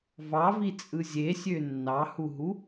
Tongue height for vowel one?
low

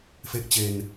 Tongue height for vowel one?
mid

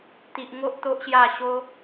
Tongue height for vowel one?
high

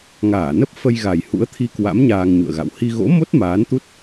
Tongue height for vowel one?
low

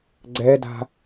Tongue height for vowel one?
mid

